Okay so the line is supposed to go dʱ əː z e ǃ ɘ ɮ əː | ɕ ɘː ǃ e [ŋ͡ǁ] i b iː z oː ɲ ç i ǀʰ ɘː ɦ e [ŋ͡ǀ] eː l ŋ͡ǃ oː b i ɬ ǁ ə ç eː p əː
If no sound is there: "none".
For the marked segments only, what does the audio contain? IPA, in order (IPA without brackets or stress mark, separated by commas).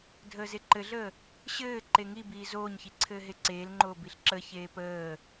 ŋ, ǀ